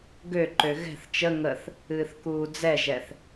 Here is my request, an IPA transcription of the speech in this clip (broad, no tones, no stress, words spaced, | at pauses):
ɡøǃø ɣɛ̤θ t͡ʃə ŋəθ | ɨːθkuːd͡zɛʒɛθ